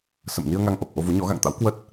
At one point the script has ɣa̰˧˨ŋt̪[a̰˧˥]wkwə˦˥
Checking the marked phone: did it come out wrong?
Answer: no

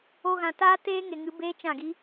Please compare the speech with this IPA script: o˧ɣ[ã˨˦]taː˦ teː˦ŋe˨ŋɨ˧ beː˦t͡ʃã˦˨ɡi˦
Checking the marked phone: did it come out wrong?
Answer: yes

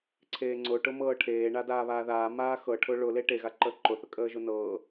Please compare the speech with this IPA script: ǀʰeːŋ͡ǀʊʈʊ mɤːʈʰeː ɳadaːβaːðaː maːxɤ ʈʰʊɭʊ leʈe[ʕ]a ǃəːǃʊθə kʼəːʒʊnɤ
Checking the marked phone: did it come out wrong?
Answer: yes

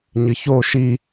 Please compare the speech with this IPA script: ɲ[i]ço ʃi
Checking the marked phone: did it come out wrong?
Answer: yes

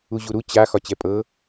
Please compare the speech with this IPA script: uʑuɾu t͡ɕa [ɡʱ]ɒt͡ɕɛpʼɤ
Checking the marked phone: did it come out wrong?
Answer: yes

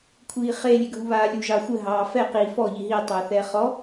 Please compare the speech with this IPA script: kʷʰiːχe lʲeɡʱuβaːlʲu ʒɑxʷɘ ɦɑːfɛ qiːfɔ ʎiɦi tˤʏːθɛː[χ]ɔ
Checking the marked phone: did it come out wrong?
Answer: no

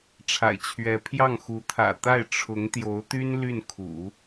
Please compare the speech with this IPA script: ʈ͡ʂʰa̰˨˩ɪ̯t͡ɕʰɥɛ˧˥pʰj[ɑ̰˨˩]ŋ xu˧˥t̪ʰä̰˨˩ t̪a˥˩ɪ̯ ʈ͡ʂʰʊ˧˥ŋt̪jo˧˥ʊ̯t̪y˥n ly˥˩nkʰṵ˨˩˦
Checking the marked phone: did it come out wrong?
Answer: yes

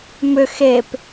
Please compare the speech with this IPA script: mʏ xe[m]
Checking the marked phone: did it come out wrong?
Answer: yes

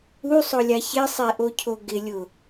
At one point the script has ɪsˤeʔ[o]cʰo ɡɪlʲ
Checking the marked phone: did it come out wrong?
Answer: no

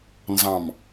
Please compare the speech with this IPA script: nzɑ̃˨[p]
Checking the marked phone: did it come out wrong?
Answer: yes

